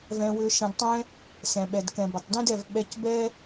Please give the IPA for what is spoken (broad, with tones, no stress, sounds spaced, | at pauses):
v ɛ̃˧ w ʏ˧ ʃ ɐ̃˧ d tˤ ɛ̃˦ | s ɛ̃˨ ɓ ɛ˨ d k ɛ̃˨ b ɐ˨ tˤ d ɛ̃˦ d ɛ˨ v ɓ ɛ˧ c b ɛ˦